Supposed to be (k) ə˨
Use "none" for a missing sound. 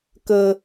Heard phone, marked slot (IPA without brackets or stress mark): k